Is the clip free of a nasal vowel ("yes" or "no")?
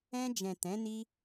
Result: no